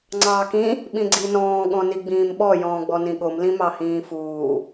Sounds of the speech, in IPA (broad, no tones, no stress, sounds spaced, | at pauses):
ŋ͡ǀ ɑː k ĩ | ɓ ĩ ɡ͡ǀ i n ɔ̃ː ɠ ɔ̃ n i ɡ͡b ĩː m ɓ ɔ j ɔ̃ː ɡ͡b ɔ n ĩ ɠ o m l ĩ m ɑ h ĩː f uː